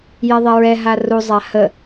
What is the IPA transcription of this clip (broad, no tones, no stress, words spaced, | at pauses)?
jɛðˤɛɹɛ ɦaru zˤahə